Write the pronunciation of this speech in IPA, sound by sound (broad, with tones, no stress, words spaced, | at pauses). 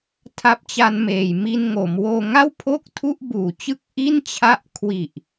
tʰa˦˥p̚t͡ɕa˧nmeː˨˩j mi˧nŋo˩˦m woː˧ŋa˥˩w pʰo˥˩k̚tʰu˥˩ʔbuː˨˩t͡ɕɯ˥˩k̚ ʔi˥˩nt͡ɕʰa˦˥ʔ kʰwi˨˩ʔ